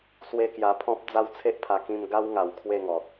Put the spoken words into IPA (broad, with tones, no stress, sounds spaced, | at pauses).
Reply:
s w e˦ k j a˧ pʰ ɔ̃˦ p̚ d͡z a˦ w t͡sʰ e˦ ʔ pʰ a˧ k ĩ˧ m ɡ a˦ w ŋ a˨˩ w kʰ w e˥˧ ŋ ɔ˨ k̚